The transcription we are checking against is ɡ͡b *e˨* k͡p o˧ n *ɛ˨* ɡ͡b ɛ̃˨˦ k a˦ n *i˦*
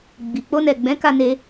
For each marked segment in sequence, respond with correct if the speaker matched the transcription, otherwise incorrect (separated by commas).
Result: incorrect, correct, incorrect